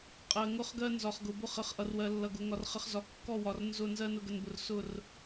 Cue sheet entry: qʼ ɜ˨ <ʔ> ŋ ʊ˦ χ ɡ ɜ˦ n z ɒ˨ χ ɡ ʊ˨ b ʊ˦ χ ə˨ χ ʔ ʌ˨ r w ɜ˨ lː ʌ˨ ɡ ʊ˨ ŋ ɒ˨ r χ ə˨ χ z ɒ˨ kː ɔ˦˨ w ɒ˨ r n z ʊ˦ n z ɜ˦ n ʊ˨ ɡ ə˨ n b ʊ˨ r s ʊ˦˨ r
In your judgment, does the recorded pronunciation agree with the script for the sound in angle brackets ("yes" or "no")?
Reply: no